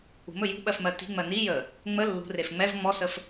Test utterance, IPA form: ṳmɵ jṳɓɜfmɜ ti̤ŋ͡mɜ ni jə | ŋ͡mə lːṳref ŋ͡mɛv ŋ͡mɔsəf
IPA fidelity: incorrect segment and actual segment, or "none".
none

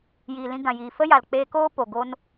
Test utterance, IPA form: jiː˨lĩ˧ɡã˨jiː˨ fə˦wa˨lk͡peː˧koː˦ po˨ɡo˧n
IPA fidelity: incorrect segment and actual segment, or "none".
w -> j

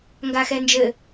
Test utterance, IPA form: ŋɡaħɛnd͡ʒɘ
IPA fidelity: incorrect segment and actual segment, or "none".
ħ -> x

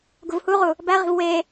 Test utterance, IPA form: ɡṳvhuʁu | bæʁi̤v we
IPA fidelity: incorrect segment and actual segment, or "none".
none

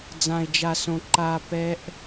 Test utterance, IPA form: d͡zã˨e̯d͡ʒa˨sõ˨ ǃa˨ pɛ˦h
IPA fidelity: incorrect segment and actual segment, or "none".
h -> ʔ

